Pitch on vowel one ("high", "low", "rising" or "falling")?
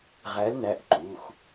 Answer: rising